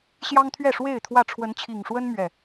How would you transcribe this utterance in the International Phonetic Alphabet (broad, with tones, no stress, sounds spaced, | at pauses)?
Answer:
ɕ j ɑ˦ ŋ t̪ʰ ɥ ɛ˥˨ ʂ w e˥˨ ɪ̯ t̪ʰ w ä˥˨ ʈ͡ʂʰ w ə˨˦ n t͡ɕʰ i˨˩ ŋ ʂ w ə˦ n m ɥ ɛ˥˨